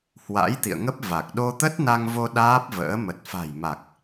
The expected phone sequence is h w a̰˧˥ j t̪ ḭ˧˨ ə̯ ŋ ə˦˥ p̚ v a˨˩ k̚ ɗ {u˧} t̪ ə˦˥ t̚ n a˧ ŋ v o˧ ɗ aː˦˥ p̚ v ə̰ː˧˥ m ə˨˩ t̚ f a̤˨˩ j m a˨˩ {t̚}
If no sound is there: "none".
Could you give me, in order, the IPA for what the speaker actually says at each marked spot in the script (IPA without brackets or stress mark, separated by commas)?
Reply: o˧, k̚